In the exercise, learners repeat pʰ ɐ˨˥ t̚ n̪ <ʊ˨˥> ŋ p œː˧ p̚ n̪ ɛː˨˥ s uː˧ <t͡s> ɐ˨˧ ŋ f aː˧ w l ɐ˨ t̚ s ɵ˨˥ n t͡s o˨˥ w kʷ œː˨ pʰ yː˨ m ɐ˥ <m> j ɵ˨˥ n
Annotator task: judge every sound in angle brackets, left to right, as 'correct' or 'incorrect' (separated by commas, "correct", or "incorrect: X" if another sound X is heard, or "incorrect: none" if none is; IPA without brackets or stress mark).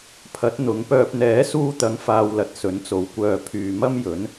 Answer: incorrect: ʊ˨˧, incorrect: t̪, correct